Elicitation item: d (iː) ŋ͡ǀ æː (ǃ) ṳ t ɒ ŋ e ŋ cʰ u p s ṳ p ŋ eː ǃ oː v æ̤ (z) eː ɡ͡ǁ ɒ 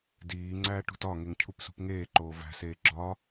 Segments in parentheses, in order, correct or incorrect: correct, incorrect, incorrect

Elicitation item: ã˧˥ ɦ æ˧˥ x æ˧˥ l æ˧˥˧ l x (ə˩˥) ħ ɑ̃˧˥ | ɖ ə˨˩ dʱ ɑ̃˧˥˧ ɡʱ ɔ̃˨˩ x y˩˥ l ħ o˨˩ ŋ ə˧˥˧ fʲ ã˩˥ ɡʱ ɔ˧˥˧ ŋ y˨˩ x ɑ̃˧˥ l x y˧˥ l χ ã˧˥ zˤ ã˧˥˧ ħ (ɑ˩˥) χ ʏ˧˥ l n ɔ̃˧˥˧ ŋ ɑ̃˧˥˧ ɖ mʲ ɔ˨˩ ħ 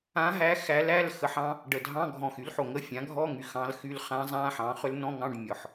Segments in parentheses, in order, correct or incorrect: correct, incorrect

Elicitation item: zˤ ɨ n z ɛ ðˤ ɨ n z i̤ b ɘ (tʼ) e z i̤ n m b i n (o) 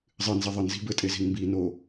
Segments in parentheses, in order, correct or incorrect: correct, correct

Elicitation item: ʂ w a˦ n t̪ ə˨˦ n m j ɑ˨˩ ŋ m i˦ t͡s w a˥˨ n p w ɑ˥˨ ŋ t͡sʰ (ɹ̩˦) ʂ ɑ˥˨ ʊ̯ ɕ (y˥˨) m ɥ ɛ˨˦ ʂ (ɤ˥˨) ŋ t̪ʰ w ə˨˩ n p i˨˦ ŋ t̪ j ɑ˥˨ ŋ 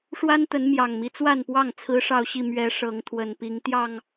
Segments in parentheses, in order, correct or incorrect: correct, incorrect, incorrect

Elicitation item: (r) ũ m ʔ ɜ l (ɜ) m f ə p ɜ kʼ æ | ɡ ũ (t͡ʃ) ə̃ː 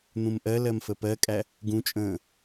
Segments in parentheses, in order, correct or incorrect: incorrect, correct, incorrect

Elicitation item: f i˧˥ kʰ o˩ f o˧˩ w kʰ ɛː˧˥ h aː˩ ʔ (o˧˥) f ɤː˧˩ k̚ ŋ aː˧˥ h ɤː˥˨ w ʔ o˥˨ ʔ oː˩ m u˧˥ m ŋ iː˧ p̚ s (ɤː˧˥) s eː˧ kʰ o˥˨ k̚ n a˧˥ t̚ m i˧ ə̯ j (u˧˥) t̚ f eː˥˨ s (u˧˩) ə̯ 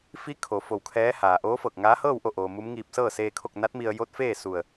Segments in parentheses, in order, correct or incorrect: incorrect, incorrect, incorrect, correct

